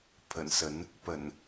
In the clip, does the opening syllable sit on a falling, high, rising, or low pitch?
low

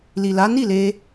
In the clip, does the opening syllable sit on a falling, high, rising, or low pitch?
low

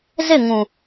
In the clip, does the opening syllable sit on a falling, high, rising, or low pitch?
falling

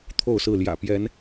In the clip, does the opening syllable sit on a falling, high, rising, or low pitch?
falling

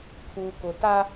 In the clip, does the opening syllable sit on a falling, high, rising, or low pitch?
low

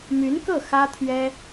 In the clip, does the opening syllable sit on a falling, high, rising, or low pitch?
rising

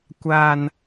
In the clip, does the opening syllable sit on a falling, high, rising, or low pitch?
high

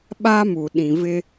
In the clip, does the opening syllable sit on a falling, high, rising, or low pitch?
high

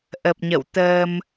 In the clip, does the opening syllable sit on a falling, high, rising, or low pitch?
low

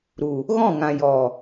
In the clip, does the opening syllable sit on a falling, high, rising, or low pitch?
low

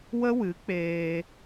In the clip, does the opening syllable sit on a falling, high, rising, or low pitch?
high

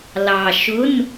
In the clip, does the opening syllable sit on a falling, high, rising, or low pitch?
low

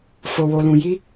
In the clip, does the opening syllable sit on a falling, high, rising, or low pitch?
low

